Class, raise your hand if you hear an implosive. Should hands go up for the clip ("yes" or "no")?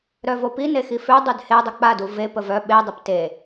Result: yes